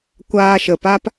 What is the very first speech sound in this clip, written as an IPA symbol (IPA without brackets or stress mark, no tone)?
kʷ